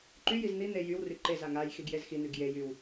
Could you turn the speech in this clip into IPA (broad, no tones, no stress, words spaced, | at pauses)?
ǃyjiz n̪i n̪e jywry ǃeza ŋaj xiɡjezxin̪yɡ jejyw